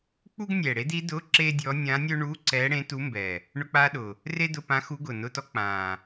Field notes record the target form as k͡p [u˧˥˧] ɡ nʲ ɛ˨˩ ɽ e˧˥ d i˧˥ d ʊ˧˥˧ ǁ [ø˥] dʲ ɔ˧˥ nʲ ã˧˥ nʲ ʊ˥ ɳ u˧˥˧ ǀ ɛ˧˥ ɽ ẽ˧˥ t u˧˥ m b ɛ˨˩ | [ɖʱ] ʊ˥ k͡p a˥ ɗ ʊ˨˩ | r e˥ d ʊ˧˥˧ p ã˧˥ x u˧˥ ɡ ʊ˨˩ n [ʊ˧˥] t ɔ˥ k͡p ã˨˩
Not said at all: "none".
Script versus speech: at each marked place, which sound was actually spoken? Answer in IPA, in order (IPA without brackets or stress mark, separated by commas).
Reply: u˥, e˥, ɳ, ʊ˧˥˧